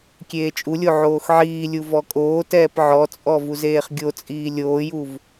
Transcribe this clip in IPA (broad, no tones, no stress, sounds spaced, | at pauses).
kʲ eː t͡ʃʼ u lʲ o ʕ oː x ʕ iː lʲ u v ɔ kʼ oː t ɛː p ʕ ɔ t͡sʼ ɔ v u z eː χ ɡʲ o t͡sʼ iː lʲ oː j u v